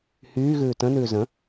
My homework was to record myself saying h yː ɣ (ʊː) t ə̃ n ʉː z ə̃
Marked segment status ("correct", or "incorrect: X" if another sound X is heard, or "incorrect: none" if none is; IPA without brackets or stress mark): incorrect: ʉː